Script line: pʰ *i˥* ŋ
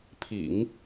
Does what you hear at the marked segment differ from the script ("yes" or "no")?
yes